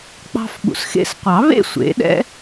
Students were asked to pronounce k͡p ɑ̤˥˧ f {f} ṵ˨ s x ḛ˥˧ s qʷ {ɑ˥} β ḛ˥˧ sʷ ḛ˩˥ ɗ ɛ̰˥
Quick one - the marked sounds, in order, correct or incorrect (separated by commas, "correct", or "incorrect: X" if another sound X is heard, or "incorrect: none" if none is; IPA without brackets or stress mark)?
incorrect: ɓ, incorrect: ɑ˨˩˦